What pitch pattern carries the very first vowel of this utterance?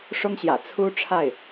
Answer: high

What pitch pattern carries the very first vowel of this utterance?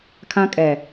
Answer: high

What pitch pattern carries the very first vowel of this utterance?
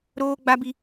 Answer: high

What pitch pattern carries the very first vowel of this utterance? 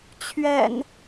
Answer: low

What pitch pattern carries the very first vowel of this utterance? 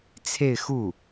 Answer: falling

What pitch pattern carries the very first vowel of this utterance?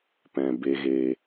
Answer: low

